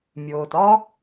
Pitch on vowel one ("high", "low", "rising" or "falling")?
low